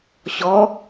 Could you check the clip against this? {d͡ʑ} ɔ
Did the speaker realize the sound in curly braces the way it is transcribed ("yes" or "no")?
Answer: no